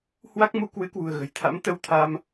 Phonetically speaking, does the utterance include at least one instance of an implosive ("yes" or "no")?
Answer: no